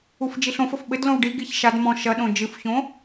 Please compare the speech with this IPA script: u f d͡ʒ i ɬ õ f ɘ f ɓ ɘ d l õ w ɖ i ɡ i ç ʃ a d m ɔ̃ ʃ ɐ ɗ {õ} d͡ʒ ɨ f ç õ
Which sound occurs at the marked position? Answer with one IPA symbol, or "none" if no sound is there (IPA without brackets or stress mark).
õ